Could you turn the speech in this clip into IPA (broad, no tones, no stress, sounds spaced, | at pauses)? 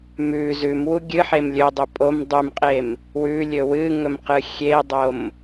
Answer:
m ʉ z ʉ m w u ɡʲ ɨ ħ e m lʲ ɵ dˤ ɵ pʼ o m dˤ ʉ m qʼ e m | w ʉ lʲ ɵ w ɨ ŋ ɵ m q ɨ xʲ e dˤ o m